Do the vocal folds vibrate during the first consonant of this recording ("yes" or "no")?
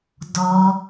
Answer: yes